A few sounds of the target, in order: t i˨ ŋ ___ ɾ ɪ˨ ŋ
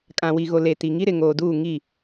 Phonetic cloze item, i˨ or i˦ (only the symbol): i˦